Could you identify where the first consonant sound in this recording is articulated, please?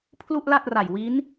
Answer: labial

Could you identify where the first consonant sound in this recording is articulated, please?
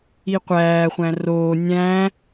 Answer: uvular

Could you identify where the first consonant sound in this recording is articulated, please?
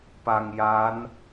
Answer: labial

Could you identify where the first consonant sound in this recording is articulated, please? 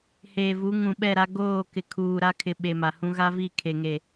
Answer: glottal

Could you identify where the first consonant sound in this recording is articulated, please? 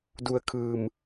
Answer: alveolar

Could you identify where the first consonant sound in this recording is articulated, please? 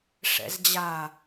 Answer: retroflex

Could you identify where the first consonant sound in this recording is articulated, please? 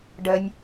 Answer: retroflex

